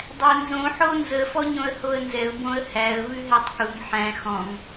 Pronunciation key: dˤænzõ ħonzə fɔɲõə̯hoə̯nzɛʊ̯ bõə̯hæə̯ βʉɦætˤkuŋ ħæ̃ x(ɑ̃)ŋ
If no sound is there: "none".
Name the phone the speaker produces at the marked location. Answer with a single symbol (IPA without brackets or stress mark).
ɔ̃